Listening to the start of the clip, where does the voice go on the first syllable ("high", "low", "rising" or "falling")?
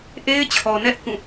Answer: high